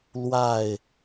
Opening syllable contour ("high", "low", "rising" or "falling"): falling